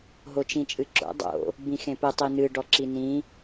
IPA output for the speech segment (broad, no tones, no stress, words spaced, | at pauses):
ɦot͡ʃĩt͡ʃʼɨǁo̰ dˤo̰ | bĩxẽpɘ tˤinɨ ɖɔǁinĩ